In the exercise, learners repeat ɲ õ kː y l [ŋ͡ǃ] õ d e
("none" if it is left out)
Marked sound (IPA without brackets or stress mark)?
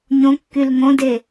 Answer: ŋ